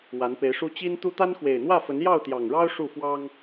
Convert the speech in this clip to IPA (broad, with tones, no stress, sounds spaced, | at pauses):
w a˨˦ n p e˨˦ ɪ̯ ʂ u˦ t͡ɕ i˦ n t̪ u˦ t̪ a˦ n x w e˨˩ ɪ̯ n̪ w ä˥˨ f ə˨˦ n j ɑ˥˨ ʊ̯ t̪ j ɑ˨˩ ŋ ɻ ɑ˦ ʊ̯ ʂ u˥˨ f w ɑ˦ ŋ